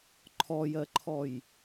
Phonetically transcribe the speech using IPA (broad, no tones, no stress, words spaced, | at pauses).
ǃʰɔjɜǃʰɔj